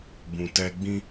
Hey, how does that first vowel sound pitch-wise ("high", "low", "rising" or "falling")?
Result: low